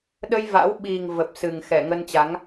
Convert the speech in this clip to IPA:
ɗ ə˧ j v a̰˧˥ w ɓ i˨˩ ŋ v ə˨˩ p̚ s ɨ˨˩ ŋ x ɛ˧˩ ŋ ə˧ n t͡ɕ a˨˦ ŋ

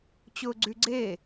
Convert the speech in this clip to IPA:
t͡ɕ ʊː ɡ͡ǀ y ɡ͡ǀ e

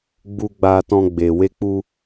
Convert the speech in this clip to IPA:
ɡ͡b u˧ ɡ͡b a˧ t ɔ̃˧ ɡ͡b e˨ w e˧ k͡p u˧

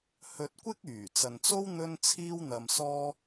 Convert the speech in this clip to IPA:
h ɵ˧ t̚ kʷ ɪ˥ k̚ yː˨˩ t͡s ɐ˨ n t͡s o˥ w n̪ ɵ˥ n t͡sʰ iː˥ w n̪ ɐ˧ m s ɔː˥

